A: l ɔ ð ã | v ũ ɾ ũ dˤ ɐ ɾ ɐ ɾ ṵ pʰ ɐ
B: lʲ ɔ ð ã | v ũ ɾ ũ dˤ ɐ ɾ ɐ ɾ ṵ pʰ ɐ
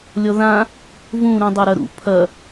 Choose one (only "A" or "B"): B